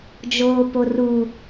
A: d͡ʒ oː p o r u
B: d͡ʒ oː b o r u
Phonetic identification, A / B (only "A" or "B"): A